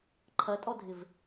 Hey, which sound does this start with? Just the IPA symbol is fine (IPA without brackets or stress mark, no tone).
ǃʰ